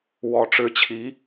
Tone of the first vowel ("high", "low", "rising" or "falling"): rising